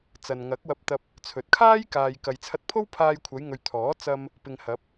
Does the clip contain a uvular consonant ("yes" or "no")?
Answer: no